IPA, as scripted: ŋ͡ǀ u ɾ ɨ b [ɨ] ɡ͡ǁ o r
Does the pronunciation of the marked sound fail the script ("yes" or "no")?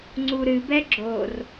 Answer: yes